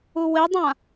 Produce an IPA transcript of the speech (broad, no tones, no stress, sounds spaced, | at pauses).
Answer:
u w e dˤ ã